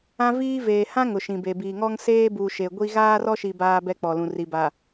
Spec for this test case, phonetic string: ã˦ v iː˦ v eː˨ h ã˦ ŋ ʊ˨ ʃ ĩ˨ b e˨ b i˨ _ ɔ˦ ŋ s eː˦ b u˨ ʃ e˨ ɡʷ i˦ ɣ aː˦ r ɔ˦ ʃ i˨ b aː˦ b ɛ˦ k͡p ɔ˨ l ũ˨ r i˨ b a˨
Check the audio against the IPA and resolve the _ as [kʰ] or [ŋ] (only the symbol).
ŋ